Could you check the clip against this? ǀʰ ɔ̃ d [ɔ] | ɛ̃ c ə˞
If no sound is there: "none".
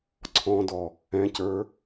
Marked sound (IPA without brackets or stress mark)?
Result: ɔ